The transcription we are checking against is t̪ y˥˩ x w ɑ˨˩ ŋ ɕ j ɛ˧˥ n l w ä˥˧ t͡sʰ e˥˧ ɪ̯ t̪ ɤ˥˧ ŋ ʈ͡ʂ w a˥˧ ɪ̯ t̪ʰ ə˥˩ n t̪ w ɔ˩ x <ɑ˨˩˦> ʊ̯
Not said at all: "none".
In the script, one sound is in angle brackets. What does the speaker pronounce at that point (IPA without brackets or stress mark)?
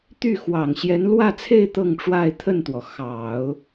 ɑ˨˩˦